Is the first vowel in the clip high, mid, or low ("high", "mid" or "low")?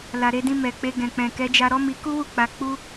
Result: low